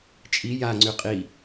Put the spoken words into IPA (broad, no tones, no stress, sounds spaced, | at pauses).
t͡ʃʼ i j a ŋ͡ǀ y qʼ i